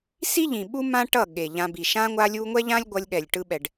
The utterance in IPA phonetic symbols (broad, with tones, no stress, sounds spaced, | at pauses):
s i˦ ʎ ĩ˨ ɓ u˦ m ã˦ ʈ ʌ˦˨ ɠ e˨ ʎ ã˧ b i˨ ʃ ã˧ ŋʷ a˧ lʲ u˧ ŋʷ ɛ˦ ʎ ã˦ lʲ ɡʷ ʌ˧ lʲ ɠ ɛ˨ lʲ ʈ ɯ˧ ɓ ɛ˨ ɖ